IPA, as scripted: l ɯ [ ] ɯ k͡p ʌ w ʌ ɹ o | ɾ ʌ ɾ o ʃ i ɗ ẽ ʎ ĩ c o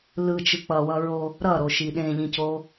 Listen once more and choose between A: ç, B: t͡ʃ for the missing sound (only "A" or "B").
B